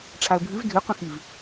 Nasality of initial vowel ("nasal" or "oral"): oral